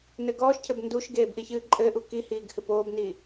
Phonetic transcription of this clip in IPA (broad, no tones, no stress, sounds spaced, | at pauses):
n ɘ ɡ ɔː ʃ cʰ ɘ b n d u ʃ ɡ eː b ʔ i ç ɨː ǃʼ ɘ ʔ u k i h iː ɡ h ɨ p oː b n iː